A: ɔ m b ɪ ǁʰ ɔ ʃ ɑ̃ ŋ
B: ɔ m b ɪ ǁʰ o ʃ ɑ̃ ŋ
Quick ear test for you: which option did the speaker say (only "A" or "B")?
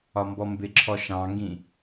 A